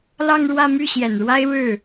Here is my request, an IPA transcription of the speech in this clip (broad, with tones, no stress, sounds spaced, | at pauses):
l ɑ˥˧ ŋ ɻ w ä˥˧ m y˥˩ ɕ j ɛ˨˩ n ɻ w a˥ ɪ̯ ɻ ɻ̩˥˩